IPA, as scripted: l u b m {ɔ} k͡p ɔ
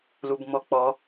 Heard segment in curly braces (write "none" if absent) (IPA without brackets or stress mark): ɔ